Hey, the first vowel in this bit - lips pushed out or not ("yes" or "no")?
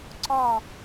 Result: yes